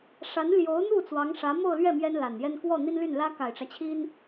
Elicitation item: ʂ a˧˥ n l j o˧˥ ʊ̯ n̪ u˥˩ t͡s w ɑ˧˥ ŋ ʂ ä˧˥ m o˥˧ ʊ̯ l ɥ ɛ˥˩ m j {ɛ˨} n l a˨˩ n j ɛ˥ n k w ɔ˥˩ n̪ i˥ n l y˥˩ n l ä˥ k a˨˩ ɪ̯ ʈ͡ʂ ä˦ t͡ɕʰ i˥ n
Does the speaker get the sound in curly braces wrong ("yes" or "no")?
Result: yes